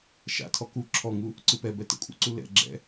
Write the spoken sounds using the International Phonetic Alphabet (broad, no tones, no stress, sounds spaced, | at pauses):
ʃ a̰ tʰ ɔ k u ǁʰ ɔ ŋ u | ǀ ɯ p ɛ b ɛ t ə̰ kʷʼ ə̰ ǀ u l ɛ̰ ɡ͡ǁ ɛ̰